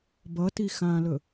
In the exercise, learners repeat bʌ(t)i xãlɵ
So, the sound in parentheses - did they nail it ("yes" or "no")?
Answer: yes